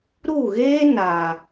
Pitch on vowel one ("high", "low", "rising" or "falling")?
falling